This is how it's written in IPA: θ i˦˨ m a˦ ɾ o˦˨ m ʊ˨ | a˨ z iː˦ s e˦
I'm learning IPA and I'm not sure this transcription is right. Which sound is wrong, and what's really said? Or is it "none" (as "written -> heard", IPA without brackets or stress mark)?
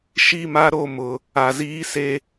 θ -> ʃ